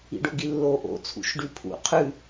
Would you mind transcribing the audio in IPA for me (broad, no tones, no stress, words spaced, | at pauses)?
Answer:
ḭɖoɡilːo ʔo̰t͡sʰṵʃɖʉ pʰṵ qʰʉ